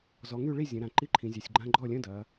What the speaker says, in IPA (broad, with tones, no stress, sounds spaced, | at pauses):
z ɔ˩˧ ŋ y˥˩ ɭ i˥˩ zʲ ə̃˩˧ ɾ ã˩˧ ǃ i˧˥˧ ǃʰ ĩ˩˧ zʲ a˩˧ sʲ ɡ͡ǃ ã˧˥˧ ɡ͡ǃ ɔ˥˩ lʲ ə̃˧˥˧ d ɐ˩˧